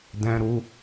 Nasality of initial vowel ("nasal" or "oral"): nasal